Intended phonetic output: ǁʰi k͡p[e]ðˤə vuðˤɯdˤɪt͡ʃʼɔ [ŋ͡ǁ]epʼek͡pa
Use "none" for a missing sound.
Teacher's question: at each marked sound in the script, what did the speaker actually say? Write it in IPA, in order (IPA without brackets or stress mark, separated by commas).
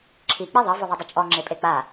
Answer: e, ŋ͡ǁ